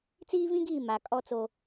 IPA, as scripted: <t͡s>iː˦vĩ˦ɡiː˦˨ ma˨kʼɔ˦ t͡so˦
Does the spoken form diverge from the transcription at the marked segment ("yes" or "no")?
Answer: no